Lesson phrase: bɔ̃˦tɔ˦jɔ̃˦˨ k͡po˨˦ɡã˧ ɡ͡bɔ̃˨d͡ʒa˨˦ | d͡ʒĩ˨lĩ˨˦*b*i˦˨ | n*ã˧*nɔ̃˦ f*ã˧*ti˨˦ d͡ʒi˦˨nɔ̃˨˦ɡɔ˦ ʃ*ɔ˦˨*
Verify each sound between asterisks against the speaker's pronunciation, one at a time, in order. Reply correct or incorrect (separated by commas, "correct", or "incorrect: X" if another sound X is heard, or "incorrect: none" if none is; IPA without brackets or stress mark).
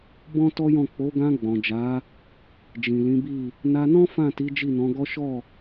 correct, incorrect: a˧, incorrect: ã˦˨, correct